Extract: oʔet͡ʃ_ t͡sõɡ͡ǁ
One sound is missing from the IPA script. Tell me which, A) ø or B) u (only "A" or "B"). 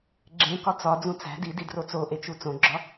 B